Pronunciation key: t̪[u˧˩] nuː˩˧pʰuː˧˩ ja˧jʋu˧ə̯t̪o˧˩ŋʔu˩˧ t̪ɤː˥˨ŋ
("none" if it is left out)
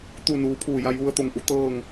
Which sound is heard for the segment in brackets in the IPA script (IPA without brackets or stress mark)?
u˧˩